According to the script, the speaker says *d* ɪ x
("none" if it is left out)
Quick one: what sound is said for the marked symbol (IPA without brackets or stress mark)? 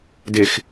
d